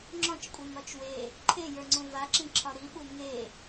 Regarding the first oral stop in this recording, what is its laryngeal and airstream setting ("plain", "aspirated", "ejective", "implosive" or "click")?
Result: click